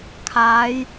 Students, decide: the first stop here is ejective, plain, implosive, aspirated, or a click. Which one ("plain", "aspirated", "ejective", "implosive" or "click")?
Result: aspirated